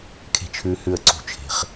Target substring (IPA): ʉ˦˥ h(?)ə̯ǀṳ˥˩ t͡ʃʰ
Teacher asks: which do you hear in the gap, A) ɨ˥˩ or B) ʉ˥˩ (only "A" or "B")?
B